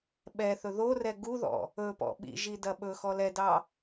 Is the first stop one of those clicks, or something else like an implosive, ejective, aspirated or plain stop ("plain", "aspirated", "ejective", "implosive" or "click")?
implosive